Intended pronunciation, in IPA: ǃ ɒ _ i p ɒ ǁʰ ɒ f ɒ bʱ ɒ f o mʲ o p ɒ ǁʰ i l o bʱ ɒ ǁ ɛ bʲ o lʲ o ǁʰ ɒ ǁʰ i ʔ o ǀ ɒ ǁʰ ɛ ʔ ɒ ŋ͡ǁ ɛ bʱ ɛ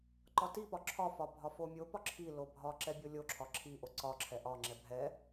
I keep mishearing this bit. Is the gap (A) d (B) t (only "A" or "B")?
B